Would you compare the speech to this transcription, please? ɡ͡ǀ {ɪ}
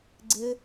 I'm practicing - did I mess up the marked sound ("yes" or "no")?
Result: no